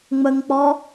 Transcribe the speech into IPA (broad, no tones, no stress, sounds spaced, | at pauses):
ŋ͡m ə ŋ k͡p ɔ